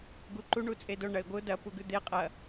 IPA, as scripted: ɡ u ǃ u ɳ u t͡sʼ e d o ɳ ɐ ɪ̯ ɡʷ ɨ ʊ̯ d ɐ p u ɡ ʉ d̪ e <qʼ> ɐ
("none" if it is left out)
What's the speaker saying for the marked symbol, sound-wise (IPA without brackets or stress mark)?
qʼ